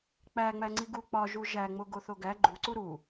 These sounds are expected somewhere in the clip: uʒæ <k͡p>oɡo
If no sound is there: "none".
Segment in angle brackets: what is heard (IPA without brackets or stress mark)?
ŋ͡m